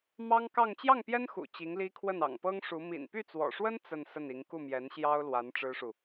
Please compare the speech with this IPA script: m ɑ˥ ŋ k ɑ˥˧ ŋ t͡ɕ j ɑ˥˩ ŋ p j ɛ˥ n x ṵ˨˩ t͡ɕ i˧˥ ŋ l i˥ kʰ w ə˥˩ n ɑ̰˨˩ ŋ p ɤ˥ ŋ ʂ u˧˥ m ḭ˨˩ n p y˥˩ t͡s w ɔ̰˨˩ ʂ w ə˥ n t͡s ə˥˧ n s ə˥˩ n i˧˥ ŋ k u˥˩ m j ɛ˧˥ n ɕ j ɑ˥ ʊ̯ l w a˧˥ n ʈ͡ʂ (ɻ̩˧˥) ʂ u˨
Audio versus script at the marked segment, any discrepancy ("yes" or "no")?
yes